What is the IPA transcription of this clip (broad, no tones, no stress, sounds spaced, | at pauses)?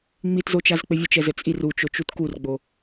ŋ͡m i t z o t͡ʃ a z k͡p ɘ vʲ ɘ t͡ʃ ɛ z ɘ t͡sʼ i r u t͡ʃ o t͡ʃ u t k u r ɡ͡b o